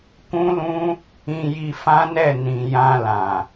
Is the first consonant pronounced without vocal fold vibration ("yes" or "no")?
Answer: yes